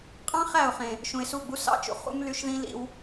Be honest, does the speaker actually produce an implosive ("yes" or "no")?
no